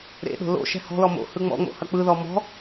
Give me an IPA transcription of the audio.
ɾ ḛ ɗ o̤ l o̰ ʃ ɛ̤ h ɔ̤ l ɔ m o̰ h ɯ ŋ͡m ɔ̰ ŋ͡m o̰ h ɐ k͡p ɯ ð ɔ m ɔ̤

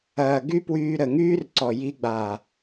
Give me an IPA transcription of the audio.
ɐː˨ ɡ y˦ p w yː˧ ɾ ə˨ ŋ yː˦ r ǀ ɔ˨ j i˧ ɡ͡b aː˨

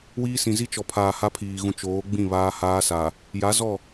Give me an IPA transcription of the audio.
w iː˦ s ĩ˨ z i˦ t͡ʃ ɔ˨ pʰ aː˨ h a˦ pʰ iː˨ ɣ ũ˨ t͡ʃ oː˨˦ ɡ͡b ĩ˦˨ β aː˦ h aː˦ s a˨ | j a˨˦ z ɔ˦˨

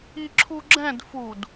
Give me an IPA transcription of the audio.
i ǁʰ u ɡ͡ǁ ɛ̃ d f u d

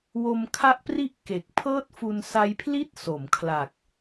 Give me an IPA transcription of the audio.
w o˧ m kʰ a˦˥ ʔ p r i˦˥ ʔ k e˨˩ k̚ pʰ ɤː˥˩ t̚ f u˧ n s a˦˥ j pʰ l i˥˩ t̚ s o˩˦ m kʰ l a˨˩ k̚

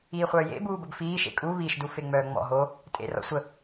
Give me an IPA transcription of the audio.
iː χʷ œː j ḛ b uː b ə b f iː ʃ ḛ kʼ u β i ʃ d u f e ŋ͡m œː ŋ͡m ɔ̰ ɦ o | tʼ ḛ r ɔ̰ sʷ ə

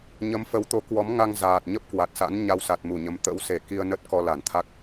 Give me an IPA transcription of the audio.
ɲ ə˨˦ m f ə˨˦ w t̪ o˨˦ k w ɔ˨˦ m ŋ a˧ ŋ z aː˨˩ t̚ ɲ ə˦˥ p̚ k w a˨˩ t̚ s a̰˧˥ n ɲ a˧ w s a˨˩ t̚ m u˧˩ ɲ ə˨˦ m t̪ ə̰˧˥ w s e˧˩ k i˧ ə̯ n ə˦˥ t̚ k ɔ˧ l a˧˩ n t̪ʰ a˦˥ k̚

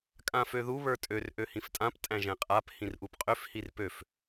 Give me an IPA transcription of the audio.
kʼ ã f ø ð u β ə˞ tʼ ø r ʔ ø h ĩ f tʼ ã p tʼ æ̃ ʒ ɛ̃ qʼ a p h ĩ r ʔ u p qʼ ø f h i r p ø f

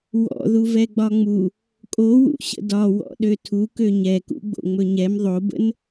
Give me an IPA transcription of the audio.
w ɔ̰ ð u v ɛ ɡ͡b ɒ ŋ͡m u | kʼ o w ṵ ɕ ə̰ d ɒ w ɔ̰ ɗ ø tʰ u k ø ɲ ɛ k ṵ ɡ͡b o̰ ŋ͡m ɵ ɲ ɛ m ðˤ o b ə̰ n

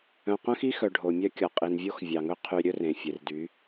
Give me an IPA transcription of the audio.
œ̃˨ q œ̃˦ x i˦ x œ˨ ɖʱ o˨ mʲ œ˦ kʲ ɔ˨ qʼ i˨ n vʲ o˦ x vʲ ɑ˨ ŋ ɵ˦ qʰ y˨ ɾʲ ɵ˦ r ẽ˨ fʲ e˨ r d y˨˦

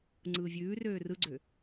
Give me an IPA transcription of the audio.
ŋ͡ǀ ɯː vʲ ʉː r øː r ɯ ɡ͡ǀ ø

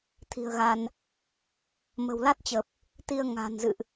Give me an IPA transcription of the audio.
t̪ʰ i̤˨˩ ə̯ ɣ a˧ n | m ə̤˨˩ w l a˦˥ t̚ t͡ɕ ə˨˩ p̚ | t̪ i˧ ə̯ ŋ a̤˨˩ n z ɨ̰˧˨ ʔ

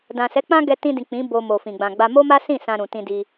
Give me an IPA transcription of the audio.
d ã˨ s ɛ˨˦ k͡p ã˦ ɡ ɛ˧ t ĩ˧ d ĩ˨ k͡p ĩ˨˦ b o˧ m o˨ f ĩ˨ ɡ͡b ã˨ ɡ͡b a˧ m o˦ m a˦ s ĩ˦˨ s ã˧ ɾ ũ˨ t ĩ˧ d i˧

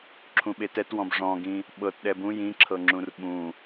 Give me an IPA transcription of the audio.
ǁʰ ũ ɓ e t ɛ t w ɔ̃ b ʐ ɔ̃ ɡ ĩ | ɓ ɤ t ɗ ɛ b ũ j ĩ ǁʰ ɤ ŋ͡ǁ ũ r ɓ ũ

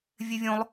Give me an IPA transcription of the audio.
vʲ e vʲ õ lˠ

